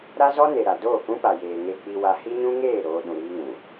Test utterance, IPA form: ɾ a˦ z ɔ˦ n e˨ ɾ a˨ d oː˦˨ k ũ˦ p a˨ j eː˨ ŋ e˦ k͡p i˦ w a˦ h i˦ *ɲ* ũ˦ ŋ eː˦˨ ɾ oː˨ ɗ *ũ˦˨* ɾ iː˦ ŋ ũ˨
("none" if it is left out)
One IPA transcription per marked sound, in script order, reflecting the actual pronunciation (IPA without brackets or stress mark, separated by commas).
ɲ, ũ˨